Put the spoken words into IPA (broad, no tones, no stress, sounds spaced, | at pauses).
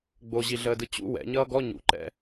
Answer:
ɡ͡b o ʑ i ɮ əː d ɯ t͡ɕ ṵ w ɛ̰ ɲ ʌː ɡ ɔ ɲ ṵ ǃ ɛ̰